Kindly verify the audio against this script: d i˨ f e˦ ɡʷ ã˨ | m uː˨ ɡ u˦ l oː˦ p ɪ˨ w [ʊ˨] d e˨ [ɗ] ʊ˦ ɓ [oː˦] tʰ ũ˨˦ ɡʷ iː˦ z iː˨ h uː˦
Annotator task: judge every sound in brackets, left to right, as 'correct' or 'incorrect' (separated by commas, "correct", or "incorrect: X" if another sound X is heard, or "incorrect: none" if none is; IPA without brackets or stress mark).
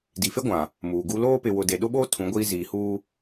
correct, correct, correct